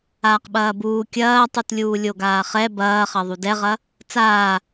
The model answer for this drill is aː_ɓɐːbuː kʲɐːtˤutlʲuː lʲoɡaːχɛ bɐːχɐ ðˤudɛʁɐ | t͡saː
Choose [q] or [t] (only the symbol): q